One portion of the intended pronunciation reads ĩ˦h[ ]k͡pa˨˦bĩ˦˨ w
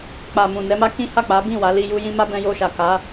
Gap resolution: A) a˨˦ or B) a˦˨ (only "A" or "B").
B